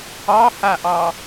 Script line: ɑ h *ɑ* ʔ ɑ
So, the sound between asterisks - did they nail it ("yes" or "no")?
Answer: no